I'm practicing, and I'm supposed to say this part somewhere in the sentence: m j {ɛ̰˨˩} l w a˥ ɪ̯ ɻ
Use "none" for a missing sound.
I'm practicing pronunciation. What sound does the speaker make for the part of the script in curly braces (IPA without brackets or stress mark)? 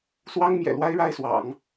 ɛ̰˨˩